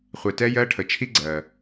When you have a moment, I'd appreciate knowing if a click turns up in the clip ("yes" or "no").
yes